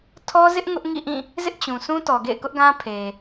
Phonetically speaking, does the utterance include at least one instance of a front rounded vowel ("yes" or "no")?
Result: no